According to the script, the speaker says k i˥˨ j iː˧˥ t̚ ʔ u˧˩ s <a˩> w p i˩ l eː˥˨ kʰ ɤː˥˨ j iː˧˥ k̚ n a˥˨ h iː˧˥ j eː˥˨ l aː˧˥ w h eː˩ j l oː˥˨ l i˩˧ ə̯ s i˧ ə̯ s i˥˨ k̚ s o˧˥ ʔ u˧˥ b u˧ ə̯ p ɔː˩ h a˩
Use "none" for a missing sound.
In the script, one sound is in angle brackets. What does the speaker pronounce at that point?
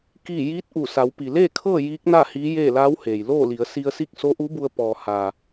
a˩˧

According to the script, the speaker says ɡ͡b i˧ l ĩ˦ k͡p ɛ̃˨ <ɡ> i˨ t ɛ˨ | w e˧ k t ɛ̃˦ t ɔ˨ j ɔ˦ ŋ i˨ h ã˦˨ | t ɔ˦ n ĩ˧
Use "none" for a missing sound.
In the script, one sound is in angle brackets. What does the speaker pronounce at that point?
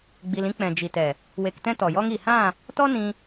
d͡ʒ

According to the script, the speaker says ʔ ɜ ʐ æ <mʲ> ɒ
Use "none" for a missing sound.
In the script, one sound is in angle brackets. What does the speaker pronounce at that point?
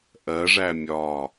mʲ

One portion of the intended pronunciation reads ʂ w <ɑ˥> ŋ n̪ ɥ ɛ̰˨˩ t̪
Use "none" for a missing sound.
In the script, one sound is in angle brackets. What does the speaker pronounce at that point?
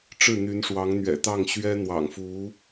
ɑ˧˥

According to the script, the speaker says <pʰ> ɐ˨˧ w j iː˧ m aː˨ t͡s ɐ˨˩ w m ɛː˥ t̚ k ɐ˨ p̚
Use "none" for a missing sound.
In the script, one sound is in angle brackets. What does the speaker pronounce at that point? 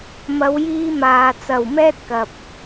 m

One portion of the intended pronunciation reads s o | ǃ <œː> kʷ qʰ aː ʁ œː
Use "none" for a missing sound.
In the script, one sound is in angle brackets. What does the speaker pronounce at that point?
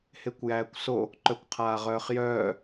œ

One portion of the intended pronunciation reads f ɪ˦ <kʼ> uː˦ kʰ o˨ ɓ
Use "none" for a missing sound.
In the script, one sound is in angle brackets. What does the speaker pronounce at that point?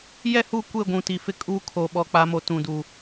kʼ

